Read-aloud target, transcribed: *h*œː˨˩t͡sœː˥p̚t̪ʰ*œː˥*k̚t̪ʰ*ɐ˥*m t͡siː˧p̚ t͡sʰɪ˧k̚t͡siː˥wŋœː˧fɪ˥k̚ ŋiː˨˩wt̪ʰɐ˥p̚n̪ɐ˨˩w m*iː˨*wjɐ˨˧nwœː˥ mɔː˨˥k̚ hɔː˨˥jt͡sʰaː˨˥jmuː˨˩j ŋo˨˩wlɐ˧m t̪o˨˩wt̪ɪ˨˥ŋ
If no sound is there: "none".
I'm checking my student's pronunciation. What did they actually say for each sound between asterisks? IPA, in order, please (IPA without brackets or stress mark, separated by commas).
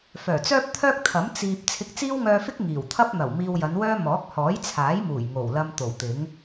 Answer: f, œː˥, ɐ˨˥, iː˧